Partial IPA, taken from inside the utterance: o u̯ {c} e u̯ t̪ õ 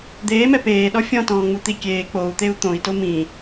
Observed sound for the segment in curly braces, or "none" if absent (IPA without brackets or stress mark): t̪